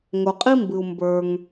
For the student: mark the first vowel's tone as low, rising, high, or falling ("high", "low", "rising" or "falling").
low